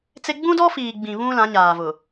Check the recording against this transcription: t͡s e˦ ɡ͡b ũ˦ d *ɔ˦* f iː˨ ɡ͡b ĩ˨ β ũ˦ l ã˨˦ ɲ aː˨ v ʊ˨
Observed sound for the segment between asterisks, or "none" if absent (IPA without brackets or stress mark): ɔ˦